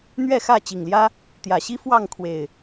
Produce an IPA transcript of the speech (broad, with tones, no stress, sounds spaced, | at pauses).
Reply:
n̪ ɥ ɛ˥˨ x ä˥˨ t͡ɕ i˨˩ ŋ l j ä˦ | t̪ j ä˨˩ ɕ i˦ f w ɑ˥˨ ŋ kʰ w e˨˩ ɪ̯